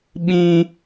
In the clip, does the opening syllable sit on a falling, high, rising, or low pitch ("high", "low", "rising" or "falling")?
high